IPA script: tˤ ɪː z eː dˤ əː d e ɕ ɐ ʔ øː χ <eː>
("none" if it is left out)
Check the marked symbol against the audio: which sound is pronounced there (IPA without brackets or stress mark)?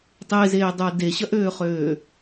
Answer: øː